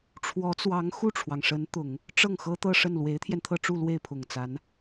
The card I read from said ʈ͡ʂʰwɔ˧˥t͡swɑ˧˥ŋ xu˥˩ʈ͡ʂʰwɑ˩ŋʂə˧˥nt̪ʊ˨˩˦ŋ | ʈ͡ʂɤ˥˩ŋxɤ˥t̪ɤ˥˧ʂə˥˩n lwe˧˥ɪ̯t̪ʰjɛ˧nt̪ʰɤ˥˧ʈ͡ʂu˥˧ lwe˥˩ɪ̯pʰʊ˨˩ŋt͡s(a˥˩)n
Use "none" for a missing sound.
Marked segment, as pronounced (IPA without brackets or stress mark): a˧˥